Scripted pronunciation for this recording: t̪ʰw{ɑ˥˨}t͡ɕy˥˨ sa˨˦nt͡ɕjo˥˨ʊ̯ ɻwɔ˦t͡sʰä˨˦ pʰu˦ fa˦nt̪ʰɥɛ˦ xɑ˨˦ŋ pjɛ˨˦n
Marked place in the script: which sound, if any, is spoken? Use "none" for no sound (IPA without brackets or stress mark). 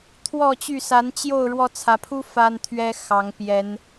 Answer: ɔ˥˨